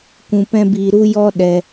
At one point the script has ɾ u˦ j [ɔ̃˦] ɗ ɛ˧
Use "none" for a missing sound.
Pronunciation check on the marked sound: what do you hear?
ɔ˦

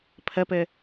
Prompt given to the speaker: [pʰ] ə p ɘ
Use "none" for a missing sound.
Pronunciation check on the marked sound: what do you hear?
pʰ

